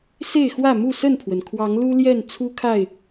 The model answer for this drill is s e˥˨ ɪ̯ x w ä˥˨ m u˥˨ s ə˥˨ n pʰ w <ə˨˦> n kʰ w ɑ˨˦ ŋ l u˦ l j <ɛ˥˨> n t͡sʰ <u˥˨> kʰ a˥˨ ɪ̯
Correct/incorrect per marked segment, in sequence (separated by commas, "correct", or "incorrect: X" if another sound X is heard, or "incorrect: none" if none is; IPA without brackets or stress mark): incorrect: ə˩, correct, incorrect: u˦